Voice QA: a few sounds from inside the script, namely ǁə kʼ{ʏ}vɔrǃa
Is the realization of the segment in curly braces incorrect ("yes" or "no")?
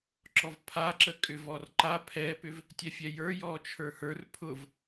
no